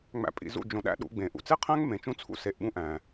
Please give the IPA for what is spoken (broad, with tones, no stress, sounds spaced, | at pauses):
ŋ͡m æ̰˨ pʼ ḭ˨ z ṵ˦˨ d͡ʒ õ˨ ɗ æ̰˦ ɗ ṵ˨˦ ɡ͡b ẽ˨ ʔ ṵ˨ t͡s e˦ qʰ æ̃˦ ŋ m ẽ˨ t͡ʃ ũ˦ t͡sʰ ṵ˦ s e˨ ʔ ɓ ũ˦ ʔ æ̃˨